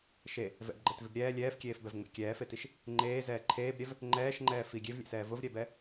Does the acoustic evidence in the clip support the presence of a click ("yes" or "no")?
yes